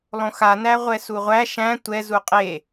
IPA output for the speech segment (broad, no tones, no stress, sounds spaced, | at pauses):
lˠ õ x a n æ ʁʷ ɛ s u ʁʷ æ ʃ æ̃ tʷ ɛ z u qʼ e